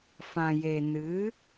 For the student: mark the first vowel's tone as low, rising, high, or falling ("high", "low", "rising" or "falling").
low